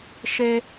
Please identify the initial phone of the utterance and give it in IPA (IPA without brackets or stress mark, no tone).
ʃ